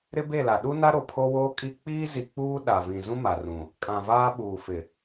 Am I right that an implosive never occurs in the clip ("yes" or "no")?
no